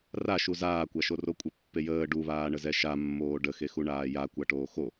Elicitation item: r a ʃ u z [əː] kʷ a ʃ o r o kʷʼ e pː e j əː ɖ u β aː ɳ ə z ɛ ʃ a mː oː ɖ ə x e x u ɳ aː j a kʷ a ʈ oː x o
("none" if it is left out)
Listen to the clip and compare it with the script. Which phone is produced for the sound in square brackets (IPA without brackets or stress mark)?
aː